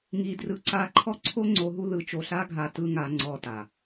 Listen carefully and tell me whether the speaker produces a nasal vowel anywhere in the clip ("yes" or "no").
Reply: no